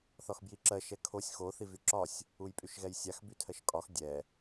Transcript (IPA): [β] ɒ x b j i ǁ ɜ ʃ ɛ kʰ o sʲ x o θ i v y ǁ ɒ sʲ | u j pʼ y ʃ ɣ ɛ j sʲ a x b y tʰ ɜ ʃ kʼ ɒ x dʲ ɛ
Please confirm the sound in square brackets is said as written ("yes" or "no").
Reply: no